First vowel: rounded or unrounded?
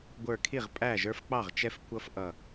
unrounded